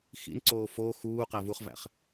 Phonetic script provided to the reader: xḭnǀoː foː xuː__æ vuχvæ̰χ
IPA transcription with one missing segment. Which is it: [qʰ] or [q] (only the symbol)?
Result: q